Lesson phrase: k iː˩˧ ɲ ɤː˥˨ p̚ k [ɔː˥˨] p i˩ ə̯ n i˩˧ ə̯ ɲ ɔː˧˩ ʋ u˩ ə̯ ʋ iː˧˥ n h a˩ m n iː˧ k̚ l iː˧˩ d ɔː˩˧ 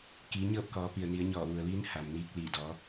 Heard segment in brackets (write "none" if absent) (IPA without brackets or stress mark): ɔː˩˧